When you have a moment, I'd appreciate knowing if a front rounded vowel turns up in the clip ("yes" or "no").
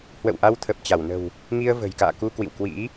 no